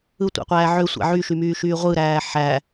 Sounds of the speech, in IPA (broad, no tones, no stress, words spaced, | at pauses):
ɯtʷæ̰qʷæː ʕø sʷæ̰ʕyʃymyː ʃyːʁʷɯɾæː ħæ